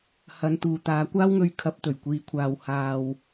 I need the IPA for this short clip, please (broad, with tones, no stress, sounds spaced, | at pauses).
h ɐ˨˧ n t̪ uː˨ t̪ aː˨˧ kʷ aː˥ w ŋ ɵ˧ ɥ kʰ ɐ˨˥ p̚ t̪ ɵ˨˩ ɥ kʷ iː˨ kʷʰ aː˨ w h aː˨ w